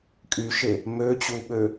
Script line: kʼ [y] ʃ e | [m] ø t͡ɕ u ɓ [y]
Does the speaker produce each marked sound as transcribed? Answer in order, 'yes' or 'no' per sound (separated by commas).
yes, yes, no